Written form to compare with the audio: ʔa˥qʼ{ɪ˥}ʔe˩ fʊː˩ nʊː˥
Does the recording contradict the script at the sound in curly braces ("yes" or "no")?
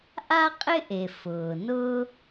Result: no